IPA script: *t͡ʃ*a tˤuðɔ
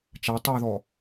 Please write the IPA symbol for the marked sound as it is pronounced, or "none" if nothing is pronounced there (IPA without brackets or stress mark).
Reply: t͡ʃ